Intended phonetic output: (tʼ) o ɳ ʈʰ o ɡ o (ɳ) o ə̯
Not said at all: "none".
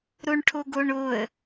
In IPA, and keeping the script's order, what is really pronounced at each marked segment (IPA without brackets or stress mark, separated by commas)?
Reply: ɾ, ɳ